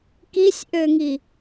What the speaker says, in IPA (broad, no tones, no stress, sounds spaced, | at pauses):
k i sʲ ʔ ø ŋ i